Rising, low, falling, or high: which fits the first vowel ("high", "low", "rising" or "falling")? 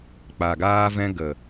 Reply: low